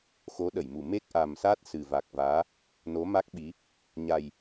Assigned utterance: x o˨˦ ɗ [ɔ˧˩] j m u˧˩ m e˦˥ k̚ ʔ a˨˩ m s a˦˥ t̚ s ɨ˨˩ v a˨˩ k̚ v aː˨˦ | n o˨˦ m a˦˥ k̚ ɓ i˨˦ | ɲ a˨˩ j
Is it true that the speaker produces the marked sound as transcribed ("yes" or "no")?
no